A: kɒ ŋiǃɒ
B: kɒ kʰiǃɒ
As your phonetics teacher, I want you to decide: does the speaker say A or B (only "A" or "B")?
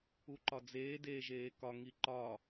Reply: A